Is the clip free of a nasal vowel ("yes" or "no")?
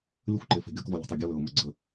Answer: yes